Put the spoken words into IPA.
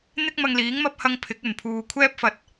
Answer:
n̪ ɪ˥ k̚ m ɐ˧ ŋ l iː˨˥ ŋ m ɐ˥ p̚ h ɐ˥ ŋ pʰ ɪ˨˥ k̚ ɵ˨˩ n pʰ uː˨ kʷʰ ɛː˥ p̚ f ɐ˨ t̚

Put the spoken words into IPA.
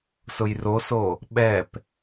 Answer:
s ʊ j r o s o | ɓ ɛ p

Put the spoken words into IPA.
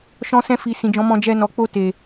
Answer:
ʃ ɔ̃˧ s ɛ̃˧ f i˨ s ĩ˨ d͡ʒ ɔ̃˨˦ m ɔ̃˧ d͡ʒ ɛ˧ n ɔ˨ k͡p o˧ t e˨

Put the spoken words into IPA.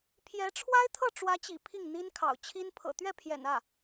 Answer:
pʰ j ɛ˧˥ ʈ͡ʂʰ w a˥ ɪ̯ t̪ʰ ɤ˥˩ ʈ͡ʂ w ä˧˥ t͡ɕ ḭ˨˩ pʰ i˥˩ ŋ n̪ i˥ n kʰ ɑ̰˨˩ ʊ̯ t͡ɕʰ i˥ n pʰ ɤ̰˨˩ t̪ ɥ ɛ˥˩ pʰ j ɛ̰˨˩ n ä˥˩

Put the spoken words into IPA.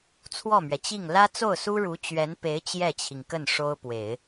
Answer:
t͡sʰ w ɔ˥˩ m ɥ ɛ˩ t͡ɕ i˥˩ ŋ l ä˥ t͡s o˥˩ ʊ̯ s u˥ ɻ u˧˥ t͡ɕ ɥ ɛ˧˥ n p e˧˥ ɪ̯ t͡ɕ j ɛ˥˩ t͡ɕʰ i˩ ŋ k ə˥˩ n ʂ o˥ ʊ̯ p w e˨˩˦ ɪ̯

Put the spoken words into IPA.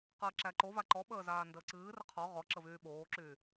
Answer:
q əː ǁ æ ǃ o v a ǃ ɔ ɓ əː z aː n d əː ǀ ɨː r ə qʰ ɔ ʁ ɔ ǁ ə v yː ɓ oː ǁ yː

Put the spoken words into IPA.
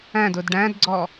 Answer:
æ̃ d ʊ d ɖ æ̃ d ɡ͡ǀ ɔ

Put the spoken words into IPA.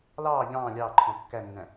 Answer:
l ɑː ʎ ɑ̃ː lʲ ɑː ǃʰ ɔ̃ kː æ nː æ̃

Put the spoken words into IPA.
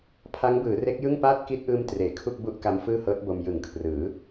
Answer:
pʰ a˦˥ ŋ b ɯː˩˦ r e˦˥ k̚ j ɯ˥˩ ŋ p aː˥˩ t̚ k i˦˥ t̚ ʔ ɯː˧ m t r eː˩˦ kʰ u˥˩ k̚ b u˥˩ ʔ k a˦˥ m f ɯː˥˩ h ɤː˦˥ t̚ b o˧ m j ɯ˨˩ ŋ kʰ r ɯː˩˦

